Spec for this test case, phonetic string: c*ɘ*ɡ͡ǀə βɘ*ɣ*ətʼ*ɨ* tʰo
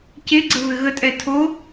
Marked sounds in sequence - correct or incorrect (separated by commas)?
incorrect, correct, incorrect